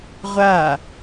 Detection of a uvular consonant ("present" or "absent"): present